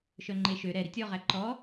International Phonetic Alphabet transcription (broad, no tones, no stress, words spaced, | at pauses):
ʃœŋ͡ǃeʃø ɾɛ ɾitʲɔʁæ ǃɔ